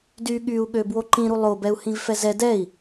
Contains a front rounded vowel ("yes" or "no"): yes